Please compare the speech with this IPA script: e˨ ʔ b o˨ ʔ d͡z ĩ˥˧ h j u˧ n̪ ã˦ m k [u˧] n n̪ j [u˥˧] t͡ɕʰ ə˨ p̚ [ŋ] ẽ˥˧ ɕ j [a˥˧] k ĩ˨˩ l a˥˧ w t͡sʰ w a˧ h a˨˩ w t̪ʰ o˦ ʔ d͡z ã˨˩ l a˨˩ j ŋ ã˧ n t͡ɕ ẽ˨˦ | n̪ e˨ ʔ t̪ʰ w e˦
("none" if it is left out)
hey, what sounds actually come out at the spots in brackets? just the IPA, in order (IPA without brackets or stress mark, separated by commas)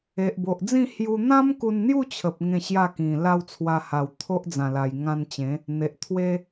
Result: u˧, u˥˧, ŋ, a˥˧